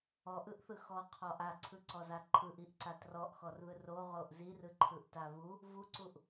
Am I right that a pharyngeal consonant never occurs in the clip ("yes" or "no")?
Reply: yes